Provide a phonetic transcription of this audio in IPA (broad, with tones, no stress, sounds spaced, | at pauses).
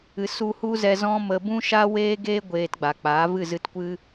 ɨ˨ s u˧ h u˦ z ɛ˧ z ɔ̃˦ m ə˧ b ũ˦ ʃ a˦ w eː˦ ɡ eː˦ ɡʷ eː˧ t ɡ͡b a˨ k͡p a˨˦ v ɨ˦˨ z ɨ˧ t kʷ ɨ˦